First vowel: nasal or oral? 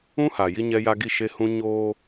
nasal